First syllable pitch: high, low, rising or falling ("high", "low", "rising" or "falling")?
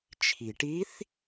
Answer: low